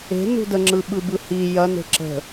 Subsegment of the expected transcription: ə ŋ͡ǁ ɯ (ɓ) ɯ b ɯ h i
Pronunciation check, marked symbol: correct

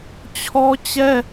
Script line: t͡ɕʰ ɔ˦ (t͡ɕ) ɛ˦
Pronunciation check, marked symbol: correct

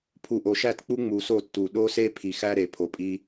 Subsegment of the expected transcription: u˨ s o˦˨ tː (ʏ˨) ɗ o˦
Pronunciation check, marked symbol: incorrect: u˨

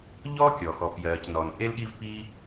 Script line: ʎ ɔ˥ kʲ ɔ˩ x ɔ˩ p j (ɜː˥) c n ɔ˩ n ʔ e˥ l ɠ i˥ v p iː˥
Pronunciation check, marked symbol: incorrect: ɜː˩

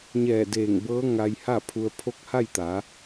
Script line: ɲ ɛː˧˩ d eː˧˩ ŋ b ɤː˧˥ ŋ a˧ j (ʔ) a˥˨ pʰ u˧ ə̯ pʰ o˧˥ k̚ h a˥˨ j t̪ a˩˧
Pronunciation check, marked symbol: incorrect: h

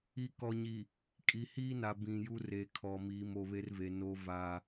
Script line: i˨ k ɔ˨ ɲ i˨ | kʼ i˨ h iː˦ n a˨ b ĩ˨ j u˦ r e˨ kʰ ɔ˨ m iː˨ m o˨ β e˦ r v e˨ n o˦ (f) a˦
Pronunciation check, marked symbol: incorrect: v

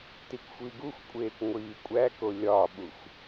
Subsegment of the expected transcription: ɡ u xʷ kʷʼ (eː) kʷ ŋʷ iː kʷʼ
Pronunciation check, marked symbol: correct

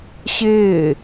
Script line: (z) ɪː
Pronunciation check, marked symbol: incorrect: ɕ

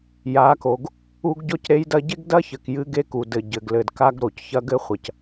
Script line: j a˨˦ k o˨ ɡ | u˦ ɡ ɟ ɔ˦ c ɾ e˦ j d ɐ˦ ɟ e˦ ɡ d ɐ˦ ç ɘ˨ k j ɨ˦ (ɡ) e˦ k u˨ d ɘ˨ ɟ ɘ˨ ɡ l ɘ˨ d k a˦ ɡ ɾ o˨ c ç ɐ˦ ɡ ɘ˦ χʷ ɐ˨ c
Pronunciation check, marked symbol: correct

